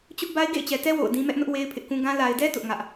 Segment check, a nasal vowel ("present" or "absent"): present